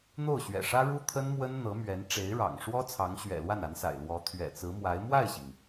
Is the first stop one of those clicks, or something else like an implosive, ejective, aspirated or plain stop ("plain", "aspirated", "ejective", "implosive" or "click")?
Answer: aspirated